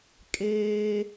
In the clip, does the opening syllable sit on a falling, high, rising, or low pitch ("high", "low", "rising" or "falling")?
high